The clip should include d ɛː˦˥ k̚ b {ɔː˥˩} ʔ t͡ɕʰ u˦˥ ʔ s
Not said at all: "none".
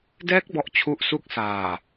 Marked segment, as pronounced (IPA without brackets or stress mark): ɔ˥˩